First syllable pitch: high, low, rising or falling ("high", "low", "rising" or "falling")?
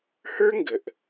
high